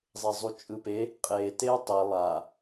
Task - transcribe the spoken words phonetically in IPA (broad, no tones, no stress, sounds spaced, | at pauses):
zˤ e zˤ u t͡ʃʼ ɯ p e | qʼ e t e i̯ tˤ i lˠ a